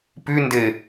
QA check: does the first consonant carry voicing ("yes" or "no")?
no